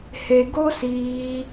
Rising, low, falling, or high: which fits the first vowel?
low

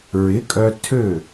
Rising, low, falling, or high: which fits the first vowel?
rising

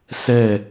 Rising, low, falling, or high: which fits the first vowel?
falling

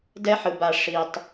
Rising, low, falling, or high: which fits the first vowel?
high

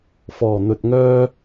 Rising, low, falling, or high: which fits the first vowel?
low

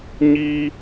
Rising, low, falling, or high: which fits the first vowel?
high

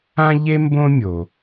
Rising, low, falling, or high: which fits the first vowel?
high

